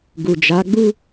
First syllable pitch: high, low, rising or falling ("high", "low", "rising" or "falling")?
low